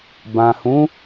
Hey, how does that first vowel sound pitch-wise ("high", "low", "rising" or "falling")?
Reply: low